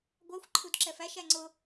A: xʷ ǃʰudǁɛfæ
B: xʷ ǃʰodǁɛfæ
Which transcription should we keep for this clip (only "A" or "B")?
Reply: A